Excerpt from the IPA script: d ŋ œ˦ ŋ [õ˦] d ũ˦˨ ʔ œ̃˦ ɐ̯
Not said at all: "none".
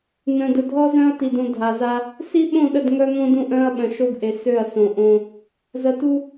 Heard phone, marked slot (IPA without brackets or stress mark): õ˦